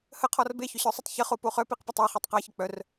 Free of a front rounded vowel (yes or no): no